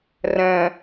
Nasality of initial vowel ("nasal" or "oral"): nasal